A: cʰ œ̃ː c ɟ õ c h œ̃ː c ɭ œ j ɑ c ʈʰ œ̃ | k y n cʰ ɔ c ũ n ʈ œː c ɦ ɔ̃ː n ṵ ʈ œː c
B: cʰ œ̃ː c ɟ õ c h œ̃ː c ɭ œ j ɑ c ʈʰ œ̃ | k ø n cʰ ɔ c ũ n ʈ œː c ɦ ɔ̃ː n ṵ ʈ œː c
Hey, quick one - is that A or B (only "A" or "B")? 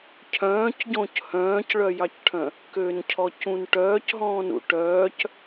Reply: B